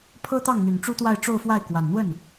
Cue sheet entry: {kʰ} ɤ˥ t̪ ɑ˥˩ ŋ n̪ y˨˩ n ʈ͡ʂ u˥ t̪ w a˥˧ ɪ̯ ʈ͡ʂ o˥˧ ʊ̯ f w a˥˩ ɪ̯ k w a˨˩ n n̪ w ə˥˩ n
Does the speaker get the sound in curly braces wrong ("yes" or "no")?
yes